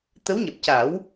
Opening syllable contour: rising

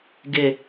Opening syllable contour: low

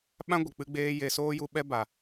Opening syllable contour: high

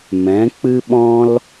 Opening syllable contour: rising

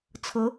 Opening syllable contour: rising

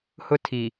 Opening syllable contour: high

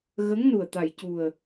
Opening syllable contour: rising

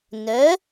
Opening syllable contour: rising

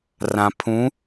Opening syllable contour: low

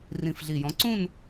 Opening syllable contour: low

